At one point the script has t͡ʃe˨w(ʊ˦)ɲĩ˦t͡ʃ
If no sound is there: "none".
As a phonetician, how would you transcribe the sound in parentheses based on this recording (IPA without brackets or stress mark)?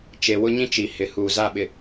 ʊ˦